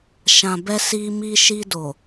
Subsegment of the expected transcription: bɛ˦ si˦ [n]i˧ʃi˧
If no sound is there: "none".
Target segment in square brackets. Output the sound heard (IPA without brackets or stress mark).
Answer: m